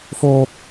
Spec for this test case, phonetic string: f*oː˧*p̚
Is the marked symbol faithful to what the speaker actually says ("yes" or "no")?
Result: yes